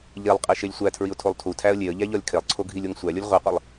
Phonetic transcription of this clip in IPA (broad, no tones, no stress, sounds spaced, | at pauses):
ʎ e lˠ qʼ i ʃ e lʲ sʷ æ tʰ ɹ i ʊ̯ tʰ o lˠ tʰ u tʰ æ ə̯ lʲ e ə̯ ʎ æ ʎ ɒ lʲ kʰ e lˠ ǀʰ o ɡʱ i lʲ o ŋ sʷ æ lʲ o lʲ ʁʷ i qʷ i lˠ